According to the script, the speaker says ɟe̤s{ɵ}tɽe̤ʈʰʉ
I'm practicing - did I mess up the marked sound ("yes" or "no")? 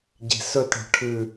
no